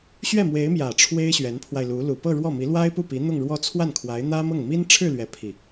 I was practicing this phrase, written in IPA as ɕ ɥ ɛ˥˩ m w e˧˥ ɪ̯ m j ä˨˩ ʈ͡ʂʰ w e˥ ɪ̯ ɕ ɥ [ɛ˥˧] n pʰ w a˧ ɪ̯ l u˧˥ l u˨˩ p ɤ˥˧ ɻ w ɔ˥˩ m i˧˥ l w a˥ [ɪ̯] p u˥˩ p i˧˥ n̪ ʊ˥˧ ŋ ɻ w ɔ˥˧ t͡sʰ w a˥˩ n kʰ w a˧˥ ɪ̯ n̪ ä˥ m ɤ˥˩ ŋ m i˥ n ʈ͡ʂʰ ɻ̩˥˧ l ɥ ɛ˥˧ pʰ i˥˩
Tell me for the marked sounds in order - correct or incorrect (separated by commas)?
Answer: incorrect, correct